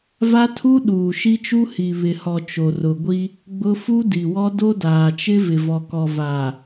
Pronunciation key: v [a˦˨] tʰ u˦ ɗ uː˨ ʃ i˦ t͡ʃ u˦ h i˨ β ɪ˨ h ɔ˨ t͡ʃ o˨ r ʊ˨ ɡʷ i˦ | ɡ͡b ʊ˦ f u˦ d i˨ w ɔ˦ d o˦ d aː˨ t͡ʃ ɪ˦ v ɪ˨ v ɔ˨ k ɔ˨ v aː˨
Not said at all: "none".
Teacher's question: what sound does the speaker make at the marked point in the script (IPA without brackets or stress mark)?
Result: a˦